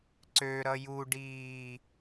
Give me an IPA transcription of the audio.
ǀ ø ɾ ʌ j u ɖ iː

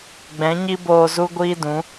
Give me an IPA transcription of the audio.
ɡ͡b ɛ̃˨˦ ɲ i˦ b oː˧ z u˦ ɡʷ iː˦ d ũ˨˦

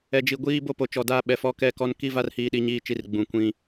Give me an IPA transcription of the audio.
ɛ˨ d͡ʒ i˨ ɡʷ iː˦ b o˦ p o˨ t͡ʃ ɔ˨ d a˦˨ ɓ ɛ˨ f ɔ˦ k ɛ˦ k ɔ˦ n k i˦ v a˦ r h iː˦ ɗ i˦ ɲ iː˦ t͡ʃ i˦ r ɡ͡b ũ˨ kʷ ĩ˦

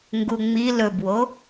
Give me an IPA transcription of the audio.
ŋ ɡ u ŋ͡m i l ɵ b w o

